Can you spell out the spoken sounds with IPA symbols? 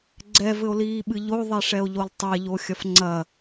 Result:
ɡ͡ǀɛvɘo̯liːɓɨ ʎoðˤɛʂɛo̯ʎolˠ tˤɛʎoxʲɐf ŋ͡ǀɐ

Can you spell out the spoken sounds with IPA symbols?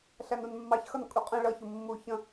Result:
ɬænunmːɑç xʌnkʼuqʼə̃ ɭʌ çʊmːu çə̃

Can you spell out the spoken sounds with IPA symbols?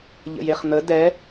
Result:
ʎə̰jeχn̪ə dɛ

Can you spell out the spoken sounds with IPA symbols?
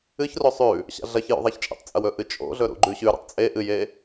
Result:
ɨçro sˤʉ | ɕa̰ɮɐçjṵ ðˤaçt͡ʃʼḛtˤt͡sʼɐw ɵʔɨt͡ʃʼo̰ɮɵ ɾṵɡ͡ǃʉɕʉɾḛtˤ t͡sʼe ʔɨje

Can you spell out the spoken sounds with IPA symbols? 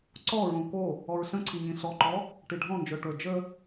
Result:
ǀɔɹõ ko | ɔɹɬə̃ǀʰi ɲĩɬɔǃɔ | ʈiɖʱɔ̃nd͡ʒə˞ ʈə˞d͡ʒə

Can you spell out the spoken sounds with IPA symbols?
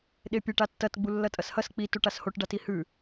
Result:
ɗepʲeʈ atːɐt ɡ͡bulːɐtʼɐshɐs k͡pi tuʈashoʈ ɖatihʉ

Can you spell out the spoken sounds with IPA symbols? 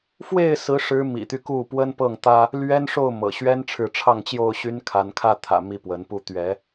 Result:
fwe˥˨ɪ̯ sɹ̩˦ʂɻ̩˦ mḭ˨˩t̪y˦ ku˥˨pwə˦n pɤ˥˨ŋt̪ä˦ | lɥɛ˦nʂo˥˨ʊ̯mɤ̰˨˩ ɕɥɛ˦nʈ͡ʂʰɻ̩˨ʈ͡ʂʰɑ˥˨ŋt͡ɕjo˥˨ʊ̯ ɕy˦nkʰa˨˦nkʰä˥˨t̪ʰä̰˨˩ mi˥˨pwə˨˦npu˦ t̪ɥɛ˨˦

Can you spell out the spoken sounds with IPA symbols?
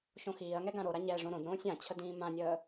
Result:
ʃõxiːɐ̯ŋɛ ɡãɾoɾa ɲɛʐõ ɾõd ɾõːsʲãt͡ɕʰə dĩːmãnʲəː

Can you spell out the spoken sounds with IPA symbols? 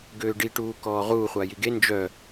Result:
ɡøːɖiʈuːkɔː ʁuː χʷajiɡe nd͡ʒœ

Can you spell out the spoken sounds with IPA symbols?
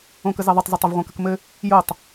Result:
õkə zɛðˤətˤzɘtˤəv ʁʷɛ̃kəkmɘ | jotˤ

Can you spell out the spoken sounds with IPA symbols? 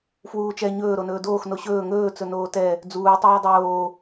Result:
fwuːt͡ʃɛ ɲɵː ɾonɵːdoːx noɕɵː ŋɵː t͡sɵnoːtɛ | d͡zuː tˤɛːdˤoː

